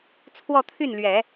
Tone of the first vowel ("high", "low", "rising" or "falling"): falling